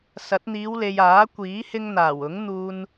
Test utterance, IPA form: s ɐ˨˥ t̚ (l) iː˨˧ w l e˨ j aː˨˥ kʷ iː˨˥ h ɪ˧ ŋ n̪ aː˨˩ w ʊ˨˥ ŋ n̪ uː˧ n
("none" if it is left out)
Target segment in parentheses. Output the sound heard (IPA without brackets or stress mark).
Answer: n̪